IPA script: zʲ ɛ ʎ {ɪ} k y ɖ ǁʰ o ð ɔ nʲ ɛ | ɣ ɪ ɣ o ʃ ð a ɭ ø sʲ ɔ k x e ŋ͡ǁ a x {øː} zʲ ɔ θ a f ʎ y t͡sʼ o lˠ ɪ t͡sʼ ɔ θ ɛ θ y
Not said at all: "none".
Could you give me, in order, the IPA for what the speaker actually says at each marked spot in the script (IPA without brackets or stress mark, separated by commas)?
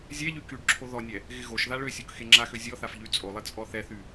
y, ø